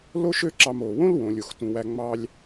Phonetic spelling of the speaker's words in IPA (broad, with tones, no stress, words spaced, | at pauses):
lo˥ʃø˦ǁɑ˨m oː˩wõ˥lwõ˩ lʲo˩x tũ˩wæ˨ ŋ͡mɑː˨lʲ